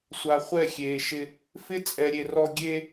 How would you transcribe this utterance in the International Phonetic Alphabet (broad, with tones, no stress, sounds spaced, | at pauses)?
sʷ a˨ χʷ ɛ˦˨ xʲ eː˨ ʃ ɪ˦ | f ɪ˦ t͡sʼ ɛ˨ ɾʲ e˨ r ɔ˦ ɡʲ e˦